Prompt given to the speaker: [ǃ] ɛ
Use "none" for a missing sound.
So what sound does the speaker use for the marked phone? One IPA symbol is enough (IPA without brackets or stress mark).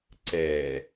ǀ